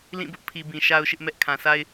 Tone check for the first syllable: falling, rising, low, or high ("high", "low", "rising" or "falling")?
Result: falling